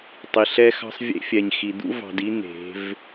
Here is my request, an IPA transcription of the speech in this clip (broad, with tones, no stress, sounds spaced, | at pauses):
tˤ i˨ ɬ ɛ˦ x ɑ̤˦ sˤ vʲ ḛ˦ fʲ ɛ˨ ɲ x i˨ d̪ ṵ˦ v ɑ̤˨ d i˦ n̪ e̤˨˦ v